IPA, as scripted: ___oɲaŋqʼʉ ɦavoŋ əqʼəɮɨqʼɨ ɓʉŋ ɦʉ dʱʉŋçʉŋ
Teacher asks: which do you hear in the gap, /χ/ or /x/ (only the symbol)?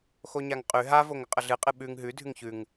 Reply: x